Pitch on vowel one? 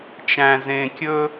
low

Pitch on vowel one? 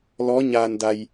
rising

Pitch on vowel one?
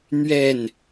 falling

